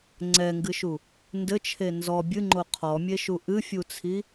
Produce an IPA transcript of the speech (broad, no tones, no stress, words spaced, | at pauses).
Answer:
ŋ͡ǀɛŋɡɨʃu | ndɘt͡ʃʰe nzɔ bʲɨŋ͡ǃo qʰɔmʲeʃu ʔɨfʲut͡sʰi